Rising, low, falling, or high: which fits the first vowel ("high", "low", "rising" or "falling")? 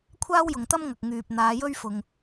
high